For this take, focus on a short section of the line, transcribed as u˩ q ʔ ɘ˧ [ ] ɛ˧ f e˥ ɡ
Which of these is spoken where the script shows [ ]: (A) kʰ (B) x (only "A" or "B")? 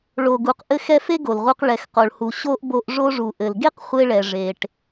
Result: B